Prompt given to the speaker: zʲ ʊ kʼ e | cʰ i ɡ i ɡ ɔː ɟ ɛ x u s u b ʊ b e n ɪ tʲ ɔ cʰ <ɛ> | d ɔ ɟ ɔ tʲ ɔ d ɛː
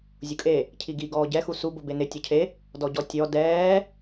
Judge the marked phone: incorrect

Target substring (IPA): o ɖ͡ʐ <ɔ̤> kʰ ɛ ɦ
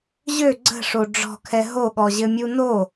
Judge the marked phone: correct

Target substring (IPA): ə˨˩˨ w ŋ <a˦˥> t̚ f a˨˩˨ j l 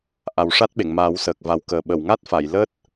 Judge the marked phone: correct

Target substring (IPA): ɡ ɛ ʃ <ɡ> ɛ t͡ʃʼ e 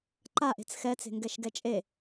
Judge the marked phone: correct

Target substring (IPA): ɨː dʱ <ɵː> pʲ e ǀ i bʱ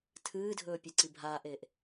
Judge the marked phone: correct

